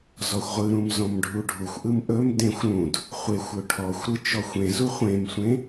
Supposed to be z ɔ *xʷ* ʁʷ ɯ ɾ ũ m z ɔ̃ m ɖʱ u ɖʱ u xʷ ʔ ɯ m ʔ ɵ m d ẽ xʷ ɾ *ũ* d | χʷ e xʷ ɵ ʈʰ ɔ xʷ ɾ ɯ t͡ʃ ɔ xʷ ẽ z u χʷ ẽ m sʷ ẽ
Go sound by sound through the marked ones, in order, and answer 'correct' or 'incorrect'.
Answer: correct, correct

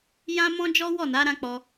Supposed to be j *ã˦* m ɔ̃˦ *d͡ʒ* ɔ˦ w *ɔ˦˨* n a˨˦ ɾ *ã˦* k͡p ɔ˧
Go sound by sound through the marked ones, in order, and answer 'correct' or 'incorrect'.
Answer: correct, correct, correct, correct

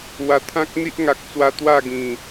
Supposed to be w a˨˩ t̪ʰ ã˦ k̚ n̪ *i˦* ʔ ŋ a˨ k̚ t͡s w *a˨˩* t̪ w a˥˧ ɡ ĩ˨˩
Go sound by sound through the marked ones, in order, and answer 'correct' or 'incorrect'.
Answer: correct, incorrect: a˧

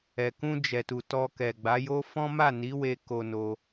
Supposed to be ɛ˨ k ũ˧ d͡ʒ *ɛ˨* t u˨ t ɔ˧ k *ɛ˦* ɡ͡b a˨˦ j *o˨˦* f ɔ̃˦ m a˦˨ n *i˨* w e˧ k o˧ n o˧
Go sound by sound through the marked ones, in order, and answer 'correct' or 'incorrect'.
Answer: correct, incorrect: ɛ˨, incorrect: o˦, incorrect: i˨˦

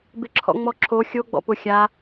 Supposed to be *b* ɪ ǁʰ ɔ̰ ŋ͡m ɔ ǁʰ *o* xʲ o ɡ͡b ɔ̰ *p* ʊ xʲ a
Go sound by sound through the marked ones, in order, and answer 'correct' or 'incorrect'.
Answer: correct, correct, correct

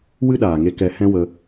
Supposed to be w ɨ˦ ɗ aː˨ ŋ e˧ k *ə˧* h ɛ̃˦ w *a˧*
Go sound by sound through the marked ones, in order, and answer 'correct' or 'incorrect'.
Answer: incorrect: ɛ˧, incorrect: ə˧

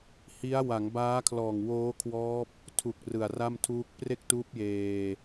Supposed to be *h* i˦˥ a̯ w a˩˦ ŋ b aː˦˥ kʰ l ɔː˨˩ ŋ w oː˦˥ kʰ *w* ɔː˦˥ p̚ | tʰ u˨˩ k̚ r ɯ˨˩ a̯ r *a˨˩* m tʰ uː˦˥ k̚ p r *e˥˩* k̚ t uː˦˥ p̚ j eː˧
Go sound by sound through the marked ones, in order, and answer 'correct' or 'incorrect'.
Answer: correct, correct, incorrect: a˥˩, correct

